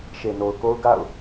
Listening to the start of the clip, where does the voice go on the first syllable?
low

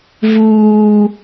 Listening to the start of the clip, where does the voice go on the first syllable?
high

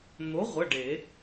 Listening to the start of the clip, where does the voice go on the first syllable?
rising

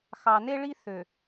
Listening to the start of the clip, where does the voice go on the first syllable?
low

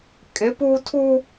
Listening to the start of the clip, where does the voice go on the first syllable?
rising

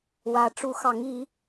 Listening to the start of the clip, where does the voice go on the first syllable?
rising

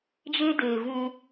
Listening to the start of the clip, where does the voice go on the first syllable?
high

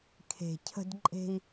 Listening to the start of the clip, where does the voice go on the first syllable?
low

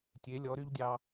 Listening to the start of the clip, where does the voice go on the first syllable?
rising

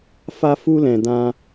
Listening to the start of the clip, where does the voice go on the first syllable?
high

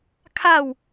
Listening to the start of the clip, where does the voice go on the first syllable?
falling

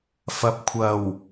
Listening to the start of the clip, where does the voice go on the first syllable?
low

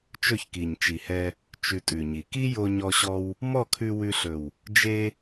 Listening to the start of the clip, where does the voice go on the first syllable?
falling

